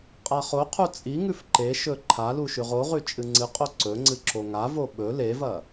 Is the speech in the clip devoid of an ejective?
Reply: no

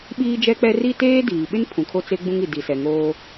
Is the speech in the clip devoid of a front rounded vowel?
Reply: yes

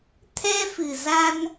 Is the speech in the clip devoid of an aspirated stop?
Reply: no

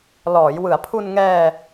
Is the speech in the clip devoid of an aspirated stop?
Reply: no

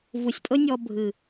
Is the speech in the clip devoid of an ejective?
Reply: no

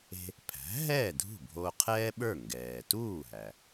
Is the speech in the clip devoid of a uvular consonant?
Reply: no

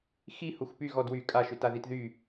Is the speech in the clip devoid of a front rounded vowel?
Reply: no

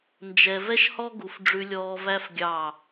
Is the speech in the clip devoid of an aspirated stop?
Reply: yes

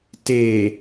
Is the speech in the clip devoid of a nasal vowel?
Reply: yes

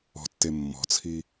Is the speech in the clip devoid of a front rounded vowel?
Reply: yes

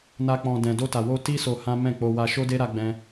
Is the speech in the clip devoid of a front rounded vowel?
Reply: yes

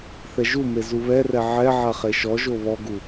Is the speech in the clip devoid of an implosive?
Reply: yes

